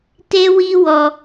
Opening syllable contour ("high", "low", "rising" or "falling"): high